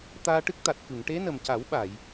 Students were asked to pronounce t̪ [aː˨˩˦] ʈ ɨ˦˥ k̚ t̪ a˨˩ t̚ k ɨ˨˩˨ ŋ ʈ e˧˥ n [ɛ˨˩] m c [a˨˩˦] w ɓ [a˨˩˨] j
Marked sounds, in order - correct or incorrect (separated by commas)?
incorrect, incorrect, correct, correct